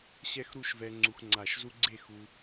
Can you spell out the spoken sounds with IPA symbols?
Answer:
ɕ ɛ˥˧ x ɾ u˥˧ ʃ v ɛ˧ ŋ͡ǀ u˧ x ŋ͡ǀ a˧˩ ʃ z u˥ ɡ͡ǀ e˥˧ x u˧

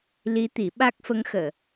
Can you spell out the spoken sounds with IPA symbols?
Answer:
l i˧˥ t̪ i˨˩˦ ɓ a˦˥ k̚ f ə˧˥ ŋ x əː˨˩˨

